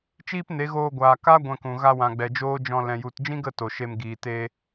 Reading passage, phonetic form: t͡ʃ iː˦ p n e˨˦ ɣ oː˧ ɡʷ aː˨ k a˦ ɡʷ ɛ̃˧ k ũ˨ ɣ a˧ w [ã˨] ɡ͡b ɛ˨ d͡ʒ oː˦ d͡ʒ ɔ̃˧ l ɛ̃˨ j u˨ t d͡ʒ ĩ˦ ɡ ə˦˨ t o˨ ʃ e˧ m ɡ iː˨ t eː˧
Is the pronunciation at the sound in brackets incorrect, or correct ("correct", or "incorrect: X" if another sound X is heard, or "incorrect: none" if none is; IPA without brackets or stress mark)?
correct